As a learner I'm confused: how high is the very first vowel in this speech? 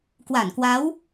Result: low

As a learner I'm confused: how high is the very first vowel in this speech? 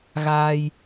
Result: low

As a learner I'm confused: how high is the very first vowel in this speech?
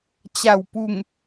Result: low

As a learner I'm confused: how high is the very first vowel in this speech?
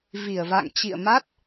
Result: high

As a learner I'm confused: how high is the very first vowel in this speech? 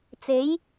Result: mid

